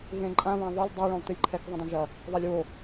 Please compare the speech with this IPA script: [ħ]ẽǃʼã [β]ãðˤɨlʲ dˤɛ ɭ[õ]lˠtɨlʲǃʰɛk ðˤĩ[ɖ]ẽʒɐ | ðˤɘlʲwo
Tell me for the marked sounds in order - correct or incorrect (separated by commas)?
incorrect, correct, correct, incorrect